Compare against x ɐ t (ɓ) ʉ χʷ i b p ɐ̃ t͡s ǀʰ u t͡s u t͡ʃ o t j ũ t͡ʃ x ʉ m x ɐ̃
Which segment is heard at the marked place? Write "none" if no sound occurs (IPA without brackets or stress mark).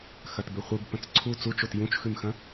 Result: b